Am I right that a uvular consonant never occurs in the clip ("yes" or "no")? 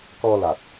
yes